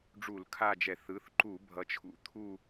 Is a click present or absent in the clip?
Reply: present